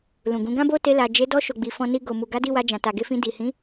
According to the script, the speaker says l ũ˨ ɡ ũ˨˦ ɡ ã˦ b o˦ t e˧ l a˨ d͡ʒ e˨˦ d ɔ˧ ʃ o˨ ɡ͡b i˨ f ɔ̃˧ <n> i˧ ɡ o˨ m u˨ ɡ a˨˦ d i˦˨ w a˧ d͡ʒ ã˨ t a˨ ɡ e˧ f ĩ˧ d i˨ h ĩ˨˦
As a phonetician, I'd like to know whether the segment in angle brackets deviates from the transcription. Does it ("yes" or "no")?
no